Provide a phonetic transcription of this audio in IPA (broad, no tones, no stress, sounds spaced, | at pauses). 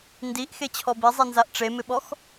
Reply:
n d i ʔ x e t͡ɕʰ ɔ b i zˤ i n z a ʔ ʈ͡ʂ e m ɪ ɓ ɔ x